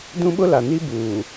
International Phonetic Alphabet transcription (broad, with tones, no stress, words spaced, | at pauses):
dũ˦ɓʊ˦la˨ni˦ buː˨